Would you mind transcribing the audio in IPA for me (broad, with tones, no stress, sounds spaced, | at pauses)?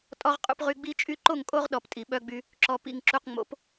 tʼ ɔ˨ ʁ qʼ ṵ˨ p ʁ y˨ ɡ͡b i˦ t͡ʃʼ y˦ ǃ o˦˨ ŋ kʼ o˦ ʁ ɗ ɔ˨ p tʼ i˨ ɓ œ˦ ɡ͡b y˦ | ǁ ɔ˨ p ḭ˨ ŋ ǁ u˨ q ŋ͡m o̰˨˦ p